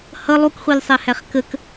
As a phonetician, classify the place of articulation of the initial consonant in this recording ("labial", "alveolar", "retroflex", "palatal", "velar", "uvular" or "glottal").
glottal